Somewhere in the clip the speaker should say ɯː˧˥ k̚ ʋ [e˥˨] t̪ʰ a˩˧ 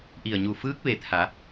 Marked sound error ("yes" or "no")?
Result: yes